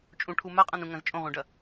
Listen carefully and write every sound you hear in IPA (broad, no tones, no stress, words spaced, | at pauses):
t͡ʃʼũʈʰu maqʼãnũ ŋɐ̃zt͡ʃʼõʁʷẽɖɐ